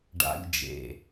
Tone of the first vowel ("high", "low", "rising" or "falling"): high